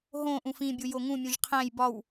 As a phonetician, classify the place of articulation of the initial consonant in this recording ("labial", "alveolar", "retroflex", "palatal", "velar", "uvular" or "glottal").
glottal